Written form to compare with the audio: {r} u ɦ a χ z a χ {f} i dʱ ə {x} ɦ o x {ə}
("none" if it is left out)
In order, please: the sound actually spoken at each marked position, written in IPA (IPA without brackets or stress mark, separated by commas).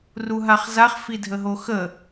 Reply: r, f, none, ə